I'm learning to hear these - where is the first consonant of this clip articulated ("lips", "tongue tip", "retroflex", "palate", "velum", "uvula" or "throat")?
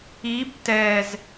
lips